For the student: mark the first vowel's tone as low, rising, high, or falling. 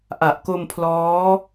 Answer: low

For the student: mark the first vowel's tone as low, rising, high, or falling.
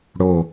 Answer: low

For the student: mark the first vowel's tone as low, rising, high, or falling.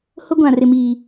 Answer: high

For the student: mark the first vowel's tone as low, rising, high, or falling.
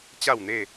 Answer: falling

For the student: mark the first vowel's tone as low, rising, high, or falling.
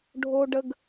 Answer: low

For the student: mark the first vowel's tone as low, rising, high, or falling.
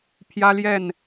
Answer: high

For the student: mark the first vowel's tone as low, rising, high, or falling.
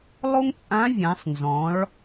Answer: high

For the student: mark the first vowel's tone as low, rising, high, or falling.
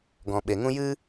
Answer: low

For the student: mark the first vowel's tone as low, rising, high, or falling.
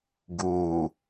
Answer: low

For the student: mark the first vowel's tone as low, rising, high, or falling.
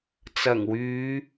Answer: low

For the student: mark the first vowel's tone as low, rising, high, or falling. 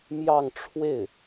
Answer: falling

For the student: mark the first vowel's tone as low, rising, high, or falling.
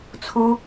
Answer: high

